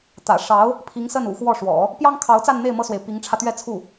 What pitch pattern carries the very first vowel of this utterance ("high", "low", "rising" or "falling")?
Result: low